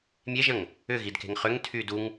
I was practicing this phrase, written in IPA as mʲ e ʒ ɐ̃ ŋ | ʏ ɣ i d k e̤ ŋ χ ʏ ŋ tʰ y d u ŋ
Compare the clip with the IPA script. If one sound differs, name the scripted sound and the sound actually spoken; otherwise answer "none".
none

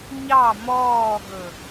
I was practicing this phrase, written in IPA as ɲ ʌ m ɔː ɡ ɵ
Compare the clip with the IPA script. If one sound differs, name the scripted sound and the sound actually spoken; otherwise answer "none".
ʌ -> ɑ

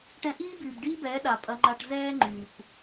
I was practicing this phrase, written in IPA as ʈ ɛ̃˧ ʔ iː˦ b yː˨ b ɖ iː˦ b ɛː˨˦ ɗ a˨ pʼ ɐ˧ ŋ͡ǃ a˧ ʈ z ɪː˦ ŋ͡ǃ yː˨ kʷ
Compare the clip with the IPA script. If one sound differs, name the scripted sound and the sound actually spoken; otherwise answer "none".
ɪː˦ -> ɛː˦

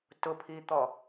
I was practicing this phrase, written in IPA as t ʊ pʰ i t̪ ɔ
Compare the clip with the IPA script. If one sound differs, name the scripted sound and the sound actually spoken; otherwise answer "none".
none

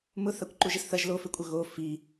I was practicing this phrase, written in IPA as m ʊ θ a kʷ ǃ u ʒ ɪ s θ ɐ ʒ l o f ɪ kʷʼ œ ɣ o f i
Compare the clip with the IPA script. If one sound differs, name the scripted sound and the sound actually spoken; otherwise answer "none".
none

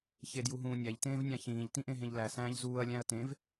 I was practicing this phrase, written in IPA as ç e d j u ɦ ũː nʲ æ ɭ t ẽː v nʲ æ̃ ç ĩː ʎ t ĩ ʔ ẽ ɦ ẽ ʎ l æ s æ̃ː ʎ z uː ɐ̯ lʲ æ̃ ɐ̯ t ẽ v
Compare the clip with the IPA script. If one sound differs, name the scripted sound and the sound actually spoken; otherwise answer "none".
ɭ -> ʎ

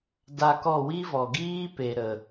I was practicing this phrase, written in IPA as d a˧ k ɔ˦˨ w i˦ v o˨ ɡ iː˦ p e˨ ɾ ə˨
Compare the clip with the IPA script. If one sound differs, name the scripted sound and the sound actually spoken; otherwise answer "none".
o˨ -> ɔ˨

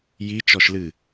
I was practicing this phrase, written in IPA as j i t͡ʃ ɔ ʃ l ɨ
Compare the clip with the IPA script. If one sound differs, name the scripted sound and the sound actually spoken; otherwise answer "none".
none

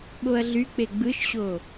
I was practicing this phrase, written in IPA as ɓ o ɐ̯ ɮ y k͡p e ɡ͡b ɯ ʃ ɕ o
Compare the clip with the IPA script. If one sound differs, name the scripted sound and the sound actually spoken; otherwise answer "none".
none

